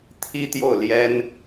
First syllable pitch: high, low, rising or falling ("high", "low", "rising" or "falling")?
high